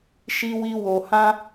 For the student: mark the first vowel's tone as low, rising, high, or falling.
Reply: high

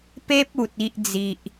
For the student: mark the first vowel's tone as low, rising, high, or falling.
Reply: high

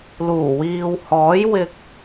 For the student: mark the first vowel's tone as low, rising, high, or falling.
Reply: low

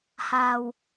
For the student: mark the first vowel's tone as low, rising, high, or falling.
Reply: low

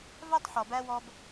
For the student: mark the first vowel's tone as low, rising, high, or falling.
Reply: high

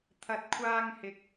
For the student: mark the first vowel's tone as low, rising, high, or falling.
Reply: low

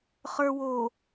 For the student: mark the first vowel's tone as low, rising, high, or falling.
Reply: low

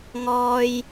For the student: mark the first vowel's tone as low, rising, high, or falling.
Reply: low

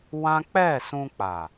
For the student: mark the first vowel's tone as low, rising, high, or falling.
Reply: high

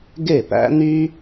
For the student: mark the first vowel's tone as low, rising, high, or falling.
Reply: falling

